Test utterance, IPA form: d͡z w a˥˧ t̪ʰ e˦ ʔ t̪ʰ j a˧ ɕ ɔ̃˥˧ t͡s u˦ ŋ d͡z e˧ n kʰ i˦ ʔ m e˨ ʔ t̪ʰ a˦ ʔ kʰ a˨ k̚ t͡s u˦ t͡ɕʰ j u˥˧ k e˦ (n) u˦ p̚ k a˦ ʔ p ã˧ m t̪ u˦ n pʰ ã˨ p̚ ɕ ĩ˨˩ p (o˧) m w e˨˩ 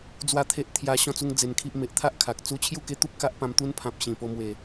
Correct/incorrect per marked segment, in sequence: incorrect, correct

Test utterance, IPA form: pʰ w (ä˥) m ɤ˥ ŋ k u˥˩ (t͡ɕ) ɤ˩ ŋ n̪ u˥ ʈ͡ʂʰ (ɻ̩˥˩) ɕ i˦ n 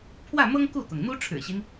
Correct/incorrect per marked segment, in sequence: incorrect, incorrect, incorrect

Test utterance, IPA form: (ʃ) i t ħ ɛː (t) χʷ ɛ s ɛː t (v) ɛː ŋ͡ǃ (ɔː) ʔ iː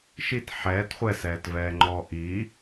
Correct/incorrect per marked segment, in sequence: correct, correct, correct, correct

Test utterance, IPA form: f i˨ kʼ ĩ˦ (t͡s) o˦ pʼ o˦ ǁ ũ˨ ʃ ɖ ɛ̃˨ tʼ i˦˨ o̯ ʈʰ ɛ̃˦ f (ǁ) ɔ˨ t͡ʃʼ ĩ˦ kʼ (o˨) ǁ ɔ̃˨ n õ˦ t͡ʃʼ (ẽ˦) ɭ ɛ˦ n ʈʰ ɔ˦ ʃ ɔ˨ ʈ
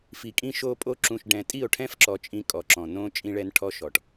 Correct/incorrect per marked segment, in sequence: incorrect, correct, incorrect, incorrect

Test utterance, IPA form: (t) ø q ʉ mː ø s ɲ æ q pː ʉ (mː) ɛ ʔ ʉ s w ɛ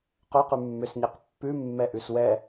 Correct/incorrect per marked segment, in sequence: incorrect, correct

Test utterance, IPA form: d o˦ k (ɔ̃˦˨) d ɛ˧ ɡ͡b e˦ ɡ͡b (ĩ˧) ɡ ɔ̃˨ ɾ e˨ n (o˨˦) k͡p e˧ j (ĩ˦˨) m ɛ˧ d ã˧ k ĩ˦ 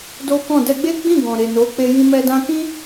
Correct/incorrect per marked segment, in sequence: correct, incorrect, correct, incorrect

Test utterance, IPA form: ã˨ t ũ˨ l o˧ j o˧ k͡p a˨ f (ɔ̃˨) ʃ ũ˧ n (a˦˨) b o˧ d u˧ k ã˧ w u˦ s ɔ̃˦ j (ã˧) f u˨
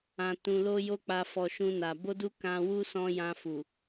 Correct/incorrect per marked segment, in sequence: incorrect, incorrect, correct

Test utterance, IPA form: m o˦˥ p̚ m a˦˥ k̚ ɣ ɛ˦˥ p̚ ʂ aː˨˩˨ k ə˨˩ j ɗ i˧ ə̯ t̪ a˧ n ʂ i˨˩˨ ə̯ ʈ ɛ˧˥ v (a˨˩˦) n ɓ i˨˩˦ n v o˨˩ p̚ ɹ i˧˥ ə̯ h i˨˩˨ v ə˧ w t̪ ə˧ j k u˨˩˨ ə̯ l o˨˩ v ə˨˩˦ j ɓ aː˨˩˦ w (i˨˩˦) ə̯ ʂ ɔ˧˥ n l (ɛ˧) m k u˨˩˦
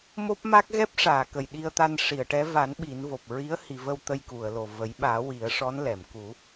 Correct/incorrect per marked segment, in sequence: correct, correct, incorrect

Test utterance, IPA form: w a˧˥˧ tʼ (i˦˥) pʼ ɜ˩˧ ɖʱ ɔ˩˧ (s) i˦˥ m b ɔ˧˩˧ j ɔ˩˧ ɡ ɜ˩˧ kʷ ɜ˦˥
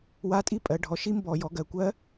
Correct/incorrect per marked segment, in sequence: correct, incorrect

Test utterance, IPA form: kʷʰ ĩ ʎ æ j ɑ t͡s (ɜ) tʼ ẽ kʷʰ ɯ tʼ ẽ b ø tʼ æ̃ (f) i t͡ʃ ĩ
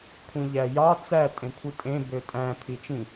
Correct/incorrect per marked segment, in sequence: incorrect, incorrect

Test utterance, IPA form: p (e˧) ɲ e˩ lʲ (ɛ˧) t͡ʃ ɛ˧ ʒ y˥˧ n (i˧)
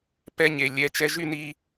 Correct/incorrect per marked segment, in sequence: incorrect, incorrect, correct

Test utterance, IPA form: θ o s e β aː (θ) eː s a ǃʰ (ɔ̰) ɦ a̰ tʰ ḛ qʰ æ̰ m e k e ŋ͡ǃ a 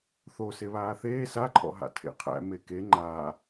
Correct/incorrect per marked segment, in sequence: correct, correct

